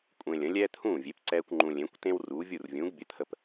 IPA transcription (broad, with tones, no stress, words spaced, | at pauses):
kʷʼẽ˧lʲə̃˩˥ lʲɛː˥t̪ʰũː˥˩vʲe˩˥p ǀɛː˥kʷŋ͡ǃũ˧ lʲẽ˩˥kʷtẽ˥w ruː˩˥ vʲu˥˩rvʲũː˩˥ɡ bʲə˩˥t̪ʰə˧p